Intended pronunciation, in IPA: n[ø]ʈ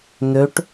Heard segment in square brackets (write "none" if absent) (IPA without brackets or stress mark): ø